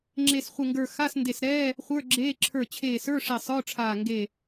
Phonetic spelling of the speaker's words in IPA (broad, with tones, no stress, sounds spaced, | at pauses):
ŋ͡ǁ e˧˩ s χʷ ɪ˧˩ ŋ ɡ ə˞˧˩ x a˧˥˧ s n d e˧˩ s ɾ ɛː˧˥˧ | χʷ ə˞˧˥˧ ɡ͡ǁ eː˧˥˧ ǁʰ ə˞˧˩ t͡ɕʰ eː˧˩ s ə˞˧˥˧ ʂ e˧˩ sˤ ə˞˧˥˧ ʈ͡ʂʰ aː˧˩ ŋ ɡ e˧˩